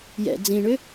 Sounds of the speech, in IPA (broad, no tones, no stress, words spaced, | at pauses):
jɛ̰ d͡zĩɳʏ